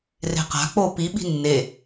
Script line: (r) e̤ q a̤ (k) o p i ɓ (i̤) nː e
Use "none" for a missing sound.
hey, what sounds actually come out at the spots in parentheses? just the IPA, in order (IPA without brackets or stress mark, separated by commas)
r, k͡p, i̤